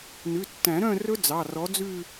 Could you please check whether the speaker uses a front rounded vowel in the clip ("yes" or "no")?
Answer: yes